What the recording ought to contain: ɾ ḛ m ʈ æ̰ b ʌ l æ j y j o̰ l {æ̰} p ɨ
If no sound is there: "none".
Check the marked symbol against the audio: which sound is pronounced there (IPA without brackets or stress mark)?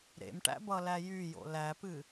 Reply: æ